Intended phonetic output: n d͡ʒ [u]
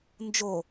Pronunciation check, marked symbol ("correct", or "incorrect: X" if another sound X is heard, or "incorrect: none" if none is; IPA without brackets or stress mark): incorrect: o